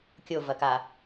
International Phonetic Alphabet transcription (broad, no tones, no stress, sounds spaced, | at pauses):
kʲ o v ɐ k a